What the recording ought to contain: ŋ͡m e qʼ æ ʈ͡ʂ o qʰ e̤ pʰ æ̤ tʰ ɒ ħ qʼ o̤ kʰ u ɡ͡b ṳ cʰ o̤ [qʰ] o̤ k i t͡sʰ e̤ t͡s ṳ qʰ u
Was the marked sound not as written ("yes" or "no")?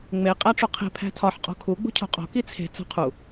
yes